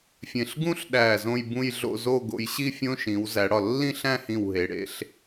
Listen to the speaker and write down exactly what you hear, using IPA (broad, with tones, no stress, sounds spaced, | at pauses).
fʲ ẽ˧˩ ɬ ɡ ũ˥ ɬ ɗ æ˧˩ z õ˥˧ j b ũ˥˧ j ɮ o̰˥˧ z o˥˧ ɡ o̰˧ j ɕ i˥˧ fʲ õ˧ ʃ ĩ˩˧ w z æ˩˧ ɽ ɒ˧˩ lː ĩ˥˧ ɬ æ̃˥˧ h ĩ˧˩ w ɦ e˩˧ ɽ ḛ˥˧ ɬ